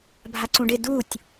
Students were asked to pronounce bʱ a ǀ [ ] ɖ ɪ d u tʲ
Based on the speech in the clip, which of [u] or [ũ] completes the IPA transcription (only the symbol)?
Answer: ũ